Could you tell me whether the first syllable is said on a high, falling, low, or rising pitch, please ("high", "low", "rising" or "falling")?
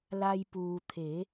low